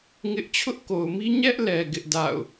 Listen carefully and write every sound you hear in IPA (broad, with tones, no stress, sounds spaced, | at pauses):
ŋ ɪ˦ ʔ t͡ɕʰ ʊ˦ ʔ k o˨ ʊ̯ m i˦ ɲ ɛ˦ ʔ l ɛ˨ ɡ ɪ˦ ʔ d a̰˦˨ ʊ̯